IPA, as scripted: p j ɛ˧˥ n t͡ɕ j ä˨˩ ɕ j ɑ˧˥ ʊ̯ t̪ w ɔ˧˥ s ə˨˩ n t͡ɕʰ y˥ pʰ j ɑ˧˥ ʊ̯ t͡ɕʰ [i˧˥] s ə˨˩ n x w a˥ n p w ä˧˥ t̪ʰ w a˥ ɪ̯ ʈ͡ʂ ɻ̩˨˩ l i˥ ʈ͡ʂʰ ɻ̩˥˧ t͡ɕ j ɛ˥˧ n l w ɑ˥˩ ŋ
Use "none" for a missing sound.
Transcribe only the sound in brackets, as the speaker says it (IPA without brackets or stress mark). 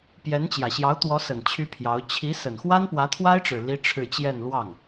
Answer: i˧˥